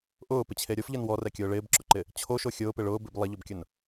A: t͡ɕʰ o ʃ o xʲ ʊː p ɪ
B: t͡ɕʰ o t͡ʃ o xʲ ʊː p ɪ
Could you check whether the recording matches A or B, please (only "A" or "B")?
A